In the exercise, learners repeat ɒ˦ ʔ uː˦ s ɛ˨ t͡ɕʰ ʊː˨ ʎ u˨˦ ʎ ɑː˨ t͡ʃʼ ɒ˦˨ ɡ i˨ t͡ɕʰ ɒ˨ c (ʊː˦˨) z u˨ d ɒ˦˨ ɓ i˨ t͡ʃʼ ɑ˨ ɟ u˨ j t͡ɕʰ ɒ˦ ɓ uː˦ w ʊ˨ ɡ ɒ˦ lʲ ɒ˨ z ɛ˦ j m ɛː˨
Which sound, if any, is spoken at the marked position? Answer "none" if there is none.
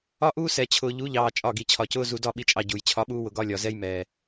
ʊː˦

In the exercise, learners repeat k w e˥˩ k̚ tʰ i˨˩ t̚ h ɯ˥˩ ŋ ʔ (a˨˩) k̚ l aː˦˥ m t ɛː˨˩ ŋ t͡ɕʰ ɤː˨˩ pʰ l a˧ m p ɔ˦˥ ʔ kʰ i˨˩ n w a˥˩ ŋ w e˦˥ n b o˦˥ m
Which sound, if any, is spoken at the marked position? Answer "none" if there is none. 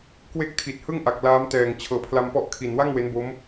a˨˩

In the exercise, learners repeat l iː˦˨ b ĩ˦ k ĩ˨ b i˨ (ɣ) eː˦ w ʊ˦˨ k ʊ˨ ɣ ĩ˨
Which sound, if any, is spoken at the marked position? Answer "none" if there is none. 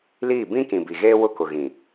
ɣ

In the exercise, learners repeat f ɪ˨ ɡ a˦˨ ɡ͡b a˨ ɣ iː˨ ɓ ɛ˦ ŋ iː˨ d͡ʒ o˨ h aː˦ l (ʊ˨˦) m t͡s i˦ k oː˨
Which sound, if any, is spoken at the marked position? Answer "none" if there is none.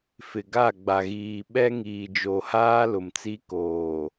ʊ˨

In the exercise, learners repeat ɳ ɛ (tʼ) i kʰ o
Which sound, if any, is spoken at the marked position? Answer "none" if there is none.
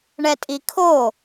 tʼ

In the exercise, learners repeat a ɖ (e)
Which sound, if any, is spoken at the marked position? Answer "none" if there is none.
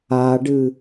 ɨ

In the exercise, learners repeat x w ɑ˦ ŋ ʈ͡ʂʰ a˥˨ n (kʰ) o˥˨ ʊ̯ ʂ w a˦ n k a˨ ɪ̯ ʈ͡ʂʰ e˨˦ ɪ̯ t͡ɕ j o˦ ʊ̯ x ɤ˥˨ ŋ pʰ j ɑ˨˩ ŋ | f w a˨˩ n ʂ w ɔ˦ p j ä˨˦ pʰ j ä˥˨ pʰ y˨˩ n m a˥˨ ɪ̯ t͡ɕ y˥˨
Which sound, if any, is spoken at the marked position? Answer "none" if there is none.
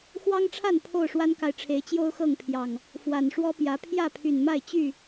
pʰ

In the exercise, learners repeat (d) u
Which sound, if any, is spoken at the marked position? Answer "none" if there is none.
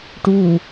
ʈ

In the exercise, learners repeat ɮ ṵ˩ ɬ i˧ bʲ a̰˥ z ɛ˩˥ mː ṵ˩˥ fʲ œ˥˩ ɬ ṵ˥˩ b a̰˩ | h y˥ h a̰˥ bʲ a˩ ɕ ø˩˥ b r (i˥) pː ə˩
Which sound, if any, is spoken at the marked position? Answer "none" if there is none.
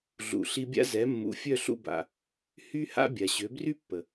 y˥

